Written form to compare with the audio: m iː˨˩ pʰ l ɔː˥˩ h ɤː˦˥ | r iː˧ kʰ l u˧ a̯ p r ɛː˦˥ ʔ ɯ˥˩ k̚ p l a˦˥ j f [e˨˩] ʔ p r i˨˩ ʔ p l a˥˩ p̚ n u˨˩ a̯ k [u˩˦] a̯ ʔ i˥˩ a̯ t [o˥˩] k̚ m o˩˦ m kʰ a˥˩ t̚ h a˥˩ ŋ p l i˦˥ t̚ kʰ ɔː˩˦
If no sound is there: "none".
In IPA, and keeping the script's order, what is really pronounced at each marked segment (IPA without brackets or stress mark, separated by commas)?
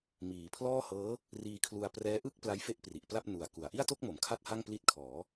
e˥˩, u˩˦, o˥˩